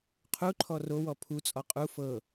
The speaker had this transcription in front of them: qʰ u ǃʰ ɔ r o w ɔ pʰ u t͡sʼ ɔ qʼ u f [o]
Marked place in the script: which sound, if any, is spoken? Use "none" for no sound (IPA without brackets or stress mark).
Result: ɤ